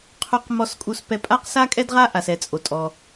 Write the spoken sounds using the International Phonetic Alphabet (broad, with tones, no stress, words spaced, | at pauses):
qʰu˥qmɔ˥s kʼu˥spɛ˥ pʼa˥qsa˥kʼɛ˥dʁa˥ ʔa˥sɛ˥t͡sʼo˥ tʼɔ˥